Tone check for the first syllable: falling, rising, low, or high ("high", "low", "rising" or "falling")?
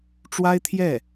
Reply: high